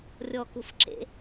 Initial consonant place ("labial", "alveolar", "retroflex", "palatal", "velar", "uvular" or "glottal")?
alveolar